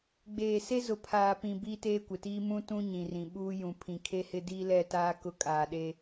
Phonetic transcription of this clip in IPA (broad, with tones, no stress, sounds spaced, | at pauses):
ɡ͡b eː˨ s e˦ z ʊ˨ pʰ aː˨ p ĩ˨ b iː˦ t eː˦ kʷ ɪ˨ t iː˦ m ũ˦ t ũ˦ ɲ ĩ˨ r ĩ˨ ɓ uː˦ j ũ˨ pʰ ĩ˨ kʰ e˦ h ɪ˦ d iː˦ l ɛ˦˨ t aː˦ k ʊ˦ kʼ aː˨ ɗ e˦